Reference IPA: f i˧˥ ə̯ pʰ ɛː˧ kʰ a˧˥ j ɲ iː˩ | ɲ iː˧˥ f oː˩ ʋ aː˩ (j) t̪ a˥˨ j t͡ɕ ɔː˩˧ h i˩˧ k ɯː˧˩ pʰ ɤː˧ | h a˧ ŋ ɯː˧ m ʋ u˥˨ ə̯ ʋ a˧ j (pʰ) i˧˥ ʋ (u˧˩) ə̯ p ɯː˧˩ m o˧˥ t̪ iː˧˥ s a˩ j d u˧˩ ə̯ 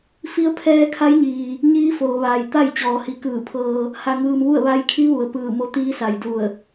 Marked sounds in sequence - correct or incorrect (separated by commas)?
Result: correct, incorrect, incorrect